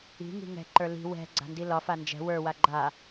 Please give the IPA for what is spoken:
i̤ ŋ i̤ ŋ ɛ̤ ǃ ə˞ l i̤ w ɛ̤ ɡ͡ǀ a̤ n d i l ɒ f a n d͡ʒ ɛ̤ w ə˞ w a ɡ͡ǃ a

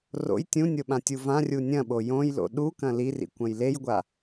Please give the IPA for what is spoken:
r o̰ j tʲ ũ nʲ o ɓ ã tʲ u v ã rʲ u nʲ ɐ̃ ɓ o j õ j l o̰ ɗ u k ɐ̃ l i r ḭ kʷ ɐ̃ j l e j ɡʷ a

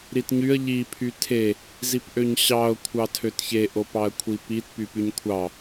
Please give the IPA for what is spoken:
ɾ i t ɲ y ə̯ ʎ i pʰ y tʰ e | z i p ʔ ø ɲ ɕ ɑ ʊ̯ kʷʰ ɑ tʰ ø t ç e ʔ o p ɑ ə̯ kʷʰ i p i t p y p y ɲ kʷʰ ɑ

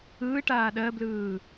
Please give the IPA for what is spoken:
ɯː ʈ aː ɗ ɜ b l ɯː

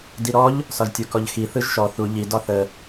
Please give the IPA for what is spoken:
d i ɾ ɔ ʎ | s ɒ ʒ tʲ u k ɔ ʎ x i θ ɯ ʒ ʃ ɔ θ u ʎ i d ɒ θ ə

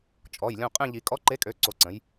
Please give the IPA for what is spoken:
t͡ʃʼ ɔ˩˧˩ j lʲ õ˦˨ qʼ ẽ˦˨ ʎ i˨˩˦ kʼ ɔ˨˥ ǃ e˨˥ kʼ ø˩˧˩ ǀ o˨˥ ǀ ə̃˨˥ j

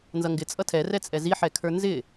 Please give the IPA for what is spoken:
n z ʌ ŋ ɡ ɪ t͡sʼ ʌ tʰ ɛ r ɛ t͡sʼ ɛ z i ħ ɛ kʰ ə˞ n z ɪ

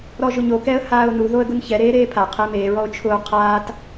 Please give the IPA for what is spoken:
ɾ ɔ ʒ ʊ ɲ o k ɛ ə̯ h aː ʊ̯ n u ð o ə̯ ɡ ʊ n ç ɛ ɾ eː ɾ eː pʰ a qʰ e m e ɹ ɔ ʊ̯ t͡ʃʰ ʊː qʰ aː t

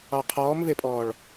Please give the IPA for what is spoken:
ɑ qʰ ɔː m v e pʼ ɔː ɭ

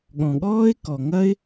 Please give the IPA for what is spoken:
ɠ ɔ̃˨ ɠ ɔː˦ ɪ̯ k ɔ˨ ŋ ɐ˦ ɪ̯

